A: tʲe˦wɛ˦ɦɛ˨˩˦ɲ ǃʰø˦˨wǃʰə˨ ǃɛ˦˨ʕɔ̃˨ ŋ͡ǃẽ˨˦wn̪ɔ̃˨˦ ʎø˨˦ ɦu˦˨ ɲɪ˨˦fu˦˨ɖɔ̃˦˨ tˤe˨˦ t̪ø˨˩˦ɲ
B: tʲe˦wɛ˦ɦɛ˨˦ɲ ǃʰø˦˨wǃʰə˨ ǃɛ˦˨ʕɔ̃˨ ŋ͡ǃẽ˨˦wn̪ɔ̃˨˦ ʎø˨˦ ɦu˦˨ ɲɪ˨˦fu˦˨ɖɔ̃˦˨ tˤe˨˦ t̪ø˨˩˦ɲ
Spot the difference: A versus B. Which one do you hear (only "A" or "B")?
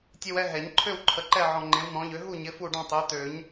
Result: A